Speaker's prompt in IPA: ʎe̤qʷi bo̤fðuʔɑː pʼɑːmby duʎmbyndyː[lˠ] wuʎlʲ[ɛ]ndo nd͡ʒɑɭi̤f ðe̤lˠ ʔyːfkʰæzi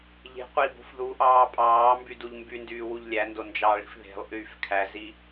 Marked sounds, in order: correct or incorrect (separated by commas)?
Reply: incorrect, incorrect